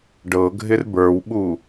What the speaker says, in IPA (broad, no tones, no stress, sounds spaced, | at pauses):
ɖ ɤ ɡʱ ɪ r b ə˞ w ɓ u